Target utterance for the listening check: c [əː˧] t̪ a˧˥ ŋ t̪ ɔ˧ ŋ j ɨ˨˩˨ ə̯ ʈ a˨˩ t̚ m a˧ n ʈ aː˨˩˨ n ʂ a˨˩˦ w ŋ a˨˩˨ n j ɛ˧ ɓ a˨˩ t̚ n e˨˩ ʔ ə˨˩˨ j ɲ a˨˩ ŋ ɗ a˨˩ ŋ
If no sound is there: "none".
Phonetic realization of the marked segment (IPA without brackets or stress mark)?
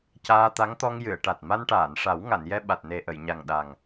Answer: aː˧